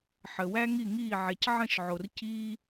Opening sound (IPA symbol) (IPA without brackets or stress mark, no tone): ħ